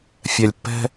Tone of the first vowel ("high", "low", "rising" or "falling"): low